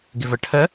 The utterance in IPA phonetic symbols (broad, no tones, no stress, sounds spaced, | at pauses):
ɡ ɪ v ə ʈʰ ə